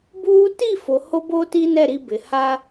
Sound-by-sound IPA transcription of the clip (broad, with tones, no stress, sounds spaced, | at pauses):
b uː˦ t i˦˨ f o˨ h o˦ b o˦ t i˦ n ɛ˦˨ ɾ i˦ b ɪ˨ h a˦